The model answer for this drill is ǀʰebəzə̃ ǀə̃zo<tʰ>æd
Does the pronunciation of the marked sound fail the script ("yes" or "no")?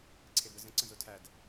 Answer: no